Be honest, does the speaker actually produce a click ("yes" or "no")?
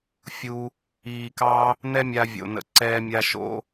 yes